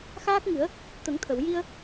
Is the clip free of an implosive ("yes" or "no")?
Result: yes